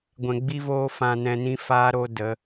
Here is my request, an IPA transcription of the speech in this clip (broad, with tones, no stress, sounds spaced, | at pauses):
ɡʷ ɛ̃˨ ɡ͡b i˧ v oː˧ f ã˧ n ɛ̃˧ n ĩ˦ f aː˦ ɾ o˦ d ə˨˦